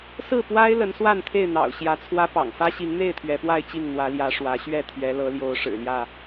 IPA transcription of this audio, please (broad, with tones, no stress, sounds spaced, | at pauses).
s ɹ̩˥˨ p w a˦ ɪ̯ l ə˨˦ n s w a˥˨ n t̪ʰ e˥˨ ɪ̯ n̪ ɑ̰˨˩ ʊ̯ ɕ j ä˨˦ t͡sʰ w ä˦ p ɑ̰˨˩ ŋ f ä˦ ɕ i˨˦ ŋ n̪ e˥˨ ɪ̯ t̪ʰ ɥ ɛ˨˦ p w a˥˨ ɪ̯ t͡ɕ i˥˨ ŋ n̪ w ä˨˦ l j ä˨˦ ʂ w ä˨˦ ɕ ɥ ɛ˥˨ t̪ʰ ɥ ɛ˨˦ l ɤ˨˦ l j o˨˦ ʊ̯ ʂ ɻ̩˨˩ l j ä˥˨